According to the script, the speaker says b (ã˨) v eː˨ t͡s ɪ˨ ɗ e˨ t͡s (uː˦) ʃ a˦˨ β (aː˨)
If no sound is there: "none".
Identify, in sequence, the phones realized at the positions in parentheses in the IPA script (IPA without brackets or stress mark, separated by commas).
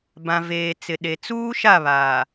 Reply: ã˨, uː˦, aː˨